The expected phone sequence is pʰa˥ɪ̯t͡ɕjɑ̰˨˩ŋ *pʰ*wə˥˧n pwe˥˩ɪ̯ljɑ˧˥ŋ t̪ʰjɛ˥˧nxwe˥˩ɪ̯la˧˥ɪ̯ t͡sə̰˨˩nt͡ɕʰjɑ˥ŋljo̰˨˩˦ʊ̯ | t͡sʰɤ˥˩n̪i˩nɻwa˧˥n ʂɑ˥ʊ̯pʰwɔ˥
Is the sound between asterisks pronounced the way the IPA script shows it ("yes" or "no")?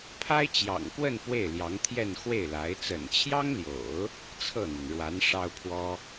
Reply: no